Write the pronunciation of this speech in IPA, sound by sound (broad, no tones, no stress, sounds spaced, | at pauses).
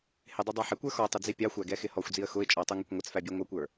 h ɪ dˤ i dˤ ɑ ħ ɪ kʷ ə˞ x ɔ tˤ ɪ d͡z i pʲ ɑ xʷ æ ɡ ɛ x ɪ h ɔ xʷ d͡z i ə̯ x ʊ ɪ̯ t͡ʃʼ ɔ tˤ u ŋ ʌ kʷ ŋʷ ə t͡s f æ bʲ ɛ ŋʷ ʌ kʷ ə˞